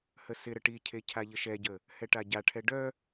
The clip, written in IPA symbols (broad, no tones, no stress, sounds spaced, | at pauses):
h ə s ɪ ɾ ə ʈ i cʰ e cʰ a ʎ ə ʃ ɛ ɟ ə | h ɛ ʈ a ɟ a ʈʰ ɛ ɖ œ